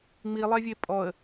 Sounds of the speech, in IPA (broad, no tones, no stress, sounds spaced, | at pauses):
ŋ͡m i lˠ ɛ vʲ e pʼ ɔ ə̯